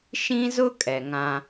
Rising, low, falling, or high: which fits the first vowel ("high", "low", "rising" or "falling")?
high